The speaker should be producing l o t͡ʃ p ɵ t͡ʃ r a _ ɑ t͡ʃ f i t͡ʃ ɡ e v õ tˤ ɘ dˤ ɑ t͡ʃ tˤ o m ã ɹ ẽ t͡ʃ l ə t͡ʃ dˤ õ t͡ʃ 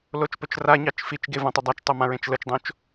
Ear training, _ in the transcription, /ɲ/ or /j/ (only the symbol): ɲ